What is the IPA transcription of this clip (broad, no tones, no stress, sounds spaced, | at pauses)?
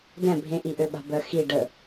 d ɛ̃ bʱ ẽ ʔ i ʔ ø ɓ a̤ b œ x i ɖ ə